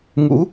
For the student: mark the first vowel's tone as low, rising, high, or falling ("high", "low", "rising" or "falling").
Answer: rising